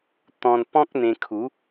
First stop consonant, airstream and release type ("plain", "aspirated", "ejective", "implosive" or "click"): plain